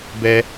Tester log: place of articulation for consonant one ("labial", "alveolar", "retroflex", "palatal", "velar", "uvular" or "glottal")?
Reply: labial